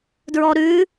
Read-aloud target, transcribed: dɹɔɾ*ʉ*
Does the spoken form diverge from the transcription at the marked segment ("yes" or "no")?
no